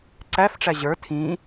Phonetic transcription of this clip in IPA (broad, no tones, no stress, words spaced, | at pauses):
ǀæfʈ͡ʂæ ʑə˞ tʰĩ